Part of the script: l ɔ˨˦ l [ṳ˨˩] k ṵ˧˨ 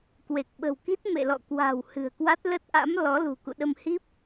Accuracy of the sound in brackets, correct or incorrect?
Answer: correct